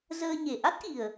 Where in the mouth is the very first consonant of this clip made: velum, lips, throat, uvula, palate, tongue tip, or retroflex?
tongue tip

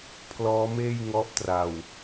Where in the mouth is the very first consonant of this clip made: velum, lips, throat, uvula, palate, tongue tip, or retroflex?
lips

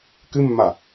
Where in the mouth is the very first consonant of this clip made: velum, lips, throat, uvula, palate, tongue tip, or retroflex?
velum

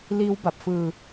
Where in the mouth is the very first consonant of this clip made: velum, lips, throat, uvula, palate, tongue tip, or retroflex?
tongue tip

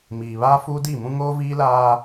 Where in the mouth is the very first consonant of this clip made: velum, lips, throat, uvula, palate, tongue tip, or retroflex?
lips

